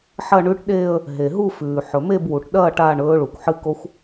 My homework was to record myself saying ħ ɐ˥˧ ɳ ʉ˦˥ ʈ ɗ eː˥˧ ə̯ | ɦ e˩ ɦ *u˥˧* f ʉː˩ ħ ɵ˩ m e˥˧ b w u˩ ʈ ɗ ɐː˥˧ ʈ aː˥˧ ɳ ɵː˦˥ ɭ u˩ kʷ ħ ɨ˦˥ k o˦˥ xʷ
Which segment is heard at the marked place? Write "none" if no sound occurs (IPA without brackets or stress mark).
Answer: u˥˧